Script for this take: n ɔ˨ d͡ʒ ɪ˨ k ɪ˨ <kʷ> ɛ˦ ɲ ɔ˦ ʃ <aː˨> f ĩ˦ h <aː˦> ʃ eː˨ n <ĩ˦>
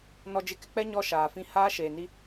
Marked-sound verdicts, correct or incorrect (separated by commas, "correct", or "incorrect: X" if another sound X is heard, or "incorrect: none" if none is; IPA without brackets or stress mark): incorrect: k͡p, correct, correct, incorrect: i˦